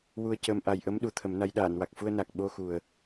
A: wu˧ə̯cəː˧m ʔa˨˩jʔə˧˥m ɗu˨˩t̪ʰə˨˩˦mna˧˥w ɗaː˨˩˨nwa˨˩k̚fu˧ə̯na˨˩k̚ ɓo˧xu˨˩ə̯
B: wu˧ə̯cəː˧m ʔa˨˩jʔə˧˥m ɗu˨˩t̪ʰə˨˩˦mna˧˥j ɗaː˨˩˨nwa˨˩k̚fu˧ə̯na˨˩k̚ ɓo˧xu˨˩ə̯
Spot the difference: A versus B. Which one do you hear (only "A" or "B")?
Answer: B